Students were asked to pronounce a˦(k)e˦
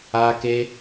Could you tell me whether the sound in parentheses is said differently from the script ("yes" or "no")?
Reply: no